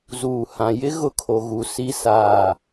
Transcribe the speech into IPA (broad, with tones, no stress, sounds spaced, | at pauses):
z uː˨ h ã˨ j ɪ˦ ɣ ʊ˦ kʰ o˨ ɣ u˨ s i˦˨ s aː˦˨